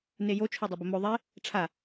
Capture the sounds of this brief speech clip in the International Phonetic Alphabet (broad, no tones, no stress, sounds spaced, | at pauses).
n e j o t͡ʃʰ o dˤ ɐ b ə m o ðˤ e | ʈ͡ʂʰ a